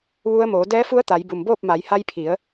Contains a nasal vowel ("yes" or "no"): no